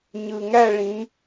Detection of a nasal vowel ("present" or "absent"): present